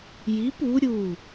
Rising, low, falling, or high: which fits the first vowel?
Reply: rising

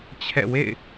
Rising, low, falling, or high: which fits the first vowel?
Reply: falling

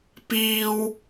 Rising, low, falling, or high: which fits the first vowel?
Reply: high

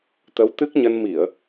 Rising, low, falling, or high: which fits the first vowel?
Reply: rising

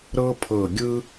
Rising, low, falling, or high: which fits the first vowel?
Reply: high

